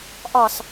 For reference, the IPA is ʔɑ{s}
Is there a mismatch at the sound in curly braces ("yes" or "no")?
no